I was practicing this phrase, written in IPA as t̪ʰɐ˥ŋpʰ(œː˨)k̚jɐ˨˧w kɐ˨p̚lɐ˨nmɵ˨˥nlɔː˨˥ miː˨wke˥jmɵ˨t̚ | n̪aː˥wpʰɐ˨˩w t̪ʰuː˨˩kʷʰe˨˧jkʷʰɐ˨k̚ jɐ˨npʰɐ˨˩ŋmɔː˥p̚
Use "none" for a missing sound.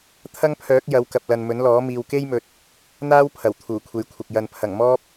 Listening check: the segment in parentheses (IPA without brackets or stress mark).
œː˨˥